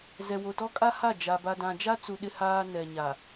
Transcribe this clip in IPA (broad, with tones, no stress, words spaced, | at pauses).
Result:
zɛ˨wo˨tɔ˦ kʼa˦ha˦˨ d͡ʒa˨ba˨ dã˨ d͡ʒa˦t͡su˨ ɗɪ˦haː˦ nɛ˨ɲa˨